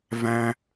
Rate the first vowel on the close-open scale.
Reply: open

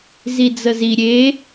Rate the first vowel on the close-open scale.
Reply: close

